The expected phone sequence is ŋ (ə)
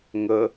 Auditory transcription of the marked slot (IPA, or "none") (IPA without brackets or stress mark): ə